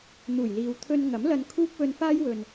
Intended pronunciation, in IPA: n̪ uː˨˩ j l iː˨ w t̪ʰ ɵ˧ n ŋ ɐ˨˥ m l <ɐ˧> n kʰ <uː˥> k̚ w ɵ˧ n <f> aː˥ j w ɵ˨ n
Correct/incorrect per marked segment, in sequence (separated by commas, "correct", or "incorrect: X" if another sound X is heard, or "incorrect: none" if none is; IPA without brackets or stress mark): correct, correct, correct